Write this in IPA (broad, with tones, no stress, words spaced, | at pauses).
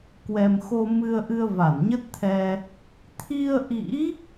kwɛ˧m xo˧mɨ˧ə̯ʔɨ˧ə̯ va˧˩nɲə˦˥t̚t̪ʰɛ˧ | t̪ʰi˧ə̯ʔḭ˧˥